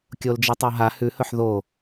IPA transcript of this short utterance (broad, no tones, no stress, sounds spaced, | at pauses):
kʲ o l d͡ʒ i tˤ o ɦ a h ʉ h ɵ ħ ð o